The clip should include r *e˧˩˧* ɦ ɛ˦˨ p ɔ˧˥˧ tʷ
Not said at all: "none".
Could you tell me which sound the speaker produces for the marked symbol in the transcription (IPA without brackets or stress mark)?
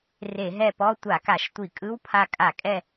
e˧˩˧